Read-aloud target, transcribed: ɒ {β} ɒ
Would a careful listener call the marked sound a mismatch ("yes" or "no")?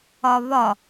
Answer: no